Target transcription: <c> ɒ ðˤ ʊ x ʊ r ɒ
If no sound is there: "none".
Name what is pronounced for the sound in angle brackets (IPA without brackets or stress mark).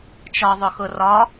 t͡ʃ